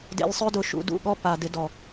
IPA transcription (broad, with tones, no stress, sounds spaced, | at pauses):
d ḛ˧ lʲ sˤ ø˦ d ʊ˧ ʃ ṵ˧ d ṵ˦˨ ɠ ɔ˦ p a˨ d ɪ˧ d ɔ˨